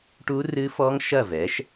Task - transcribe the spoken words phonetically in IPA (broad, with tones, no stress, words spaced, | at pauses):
ʈu˦˥rɨ˦˥fɔ˦˥ŋ ʃɐ˥˨vɛ˩˥ʃ